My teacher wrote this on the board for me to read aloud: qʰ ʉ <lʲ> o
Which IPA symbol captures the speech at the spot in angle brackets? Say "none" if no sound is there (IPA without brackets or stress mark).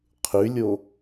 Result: lʲ